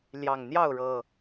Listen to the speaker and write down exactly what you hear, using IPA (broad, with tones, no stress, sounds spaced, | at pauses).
l j ɑ˨˩ ŋ n̪ j ɑ˥˨ ʊ̯ ɻ ɤ˨˩